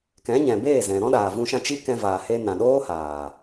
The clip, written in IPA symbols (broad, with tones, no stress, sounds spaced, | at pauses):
k ɛ̃˨˦ ɲ ɛ̃˨ b eː˦˨ z ɛ̃˨ ɾ ɔ̃˦ ɗ aː˨ v ũ˧ ʃ ã˧ t͡ʃ i˦ k ɛ̃˧ v aː˨ h e˦ n ã˨ ɗ oː˦ h aː˨